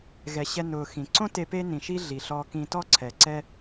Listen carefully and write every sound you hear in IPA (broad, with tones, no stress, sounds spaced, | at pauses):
ɣ ɛ˩ ɕ ɛ˧ n ʊː˩ x ĩ˩ ǀ õ˥ t e˧ p e˥ n ĩ˩ ʃ i˥ ɮ i˩ ɬ ɔ˧ k ĩ˧ t ɔ˥ ǀʰ ɛ˩ ǀ ɛ˥